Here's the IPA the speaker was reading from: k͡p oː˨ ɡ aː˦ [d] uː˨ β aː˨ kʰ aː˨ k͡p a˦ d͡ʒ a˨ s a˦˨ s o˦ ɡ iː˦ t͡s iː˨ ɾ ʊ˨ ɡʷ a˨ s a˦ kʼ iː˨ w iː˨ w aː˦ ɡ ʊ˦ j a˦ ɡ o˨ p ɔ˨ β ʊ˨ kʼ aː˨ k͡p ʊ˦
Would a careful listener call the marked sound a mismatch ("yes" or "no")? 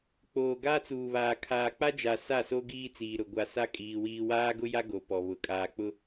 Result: yes